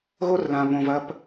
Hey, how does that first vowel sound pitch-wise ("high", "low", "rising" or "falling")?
high